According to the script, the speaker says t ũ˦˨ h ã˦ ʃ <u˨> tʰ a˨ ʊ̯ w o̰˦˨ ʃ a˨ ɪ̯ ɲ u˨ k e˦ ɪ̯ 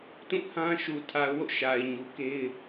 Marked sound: correct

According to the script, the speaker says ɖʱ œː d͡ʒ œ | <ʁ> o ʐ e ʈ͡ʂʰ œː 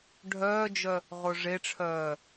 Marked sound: correct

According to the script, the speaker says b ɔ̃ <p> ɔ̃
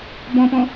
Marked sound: correct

